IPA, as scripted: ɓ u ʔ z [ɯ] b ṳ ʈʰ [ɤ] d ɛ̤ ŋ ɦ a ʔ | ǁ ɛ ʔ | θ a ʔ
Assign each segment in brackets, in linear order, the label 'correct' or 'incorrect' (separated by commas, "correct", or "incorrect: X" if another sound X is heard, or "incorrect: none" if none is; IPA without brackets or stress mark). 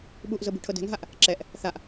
incorrect: ɤ, correct